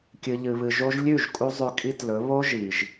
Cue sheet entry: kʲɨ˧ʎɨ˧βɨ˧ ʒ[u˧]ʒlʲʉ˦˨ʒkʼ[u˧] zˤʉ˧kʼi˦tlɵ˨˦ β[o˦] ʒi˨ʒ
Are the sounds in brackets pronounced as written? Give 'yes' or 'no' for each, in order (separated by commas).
no, yes, yes